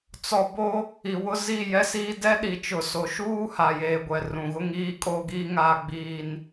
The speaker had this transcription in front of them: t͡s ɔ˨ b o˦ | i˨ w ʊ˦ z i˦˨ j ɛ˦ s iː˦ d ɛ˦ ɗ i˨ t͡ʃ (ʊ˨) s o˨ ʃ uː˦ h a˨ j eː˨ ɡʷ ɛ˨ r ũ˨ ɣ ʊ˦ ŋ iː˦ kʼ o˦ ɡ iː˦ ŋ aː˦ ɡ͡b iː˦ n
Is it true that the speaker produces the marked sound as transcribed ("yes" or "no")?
yes